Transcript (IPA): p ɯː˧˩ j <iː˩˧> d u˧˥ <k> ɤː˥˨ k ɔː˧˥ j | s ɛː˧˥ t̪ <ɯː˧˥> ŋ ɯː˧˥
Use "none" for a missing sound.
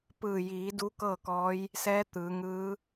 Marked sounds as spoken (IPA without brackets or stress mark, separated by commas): iː˩˧, k, ɯː˩˧